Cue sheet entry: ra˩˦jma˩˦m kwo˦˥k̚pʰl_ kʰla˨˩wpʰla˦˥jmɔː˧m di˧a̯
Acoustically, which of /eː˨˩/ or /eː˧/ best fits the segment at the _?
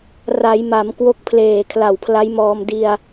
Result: eː˨˩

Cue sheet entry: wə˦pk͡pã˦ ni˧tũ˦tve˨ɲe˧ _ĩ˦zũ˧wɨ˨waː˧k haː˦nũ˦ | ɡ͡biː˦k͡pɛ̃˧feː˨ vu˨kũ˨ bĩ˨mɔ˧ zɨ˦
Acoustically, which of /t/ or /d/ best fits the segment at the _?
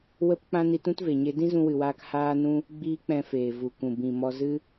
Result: d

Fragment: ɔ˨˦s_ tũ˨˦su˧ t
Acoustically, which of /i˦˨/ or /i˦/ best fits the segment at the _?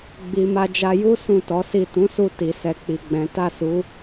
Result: i˦˨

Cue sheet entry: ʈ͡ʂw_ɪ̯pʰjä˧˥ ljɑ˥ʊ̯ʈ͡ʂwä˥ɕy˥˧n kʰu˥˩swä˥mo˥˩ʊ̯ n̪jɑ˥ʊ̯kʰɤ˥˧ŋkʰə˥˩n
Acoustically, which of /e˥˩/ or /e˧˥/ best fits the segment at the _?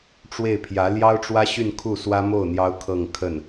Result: e˥˩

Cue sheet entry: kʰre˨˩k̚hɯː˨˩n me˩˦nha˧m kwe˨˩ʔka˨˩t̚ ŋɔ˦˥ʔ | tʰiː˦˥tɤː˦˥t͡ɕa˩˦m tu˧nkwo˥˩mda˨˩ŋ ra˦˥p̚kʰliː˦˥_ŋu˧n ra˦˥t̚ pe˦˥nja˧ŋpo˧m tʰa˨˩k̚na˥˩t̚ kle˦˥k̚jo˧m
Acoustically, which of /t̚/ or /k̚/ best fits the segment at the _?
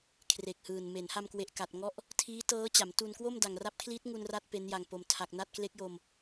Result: t̚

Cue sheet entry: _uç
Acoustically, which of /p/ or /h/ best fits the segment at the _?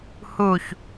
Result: h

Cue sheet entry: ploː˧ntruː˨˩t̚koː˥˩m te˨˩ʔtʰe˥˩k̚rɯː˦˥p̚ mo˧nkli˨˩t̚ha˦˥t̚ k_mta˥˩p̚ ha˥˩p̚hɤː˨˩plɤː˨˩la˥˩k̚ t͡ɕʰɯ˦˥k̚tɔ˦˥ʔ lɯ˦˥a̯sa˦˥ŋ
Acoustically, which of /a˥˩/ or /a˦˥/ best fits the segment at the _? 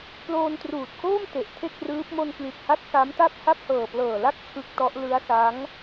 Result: a˦˥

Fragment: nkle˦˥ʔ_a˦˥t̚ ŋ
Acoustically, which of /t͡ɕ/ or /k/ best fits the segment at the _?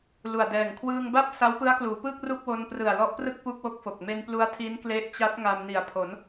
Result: t͡ɕ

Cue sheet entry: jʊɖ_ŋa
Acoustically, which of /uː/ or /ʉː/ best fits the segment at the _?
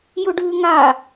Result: ʉː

